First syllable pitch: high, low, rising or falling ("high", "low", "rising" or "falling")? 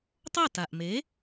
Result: falling